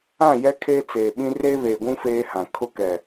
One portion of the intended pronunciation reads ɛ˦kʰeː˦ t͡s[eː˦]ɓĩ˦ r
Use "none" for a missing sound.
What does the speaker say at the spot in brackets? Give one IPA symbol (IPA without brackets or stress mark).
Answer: eː˨